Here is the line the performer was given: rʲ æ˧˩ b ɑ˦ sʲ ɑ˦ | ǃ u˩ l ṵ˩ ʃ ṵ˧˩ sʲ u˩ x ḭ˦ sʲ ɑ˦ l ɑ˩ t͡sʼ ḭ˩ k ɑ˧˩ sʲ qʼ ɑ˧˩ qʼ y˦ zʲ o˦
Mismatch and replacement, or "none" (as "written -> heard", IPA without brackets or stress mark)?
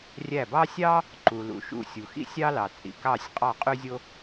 none